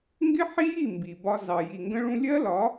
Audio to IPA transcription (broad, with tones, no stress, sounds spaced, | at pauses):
ŋ ɡ ɪ˦ ħ i˦ j i˦˨ m b i˨ b ɒ˦ z ɑ˨ j i˨ ŋ ɡ ə̃˦ ɭ ũ˦ lʲ ɜ˦ l ɒ˨˦